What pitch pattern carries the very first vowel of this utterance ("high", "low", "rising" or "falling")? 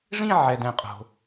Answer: falling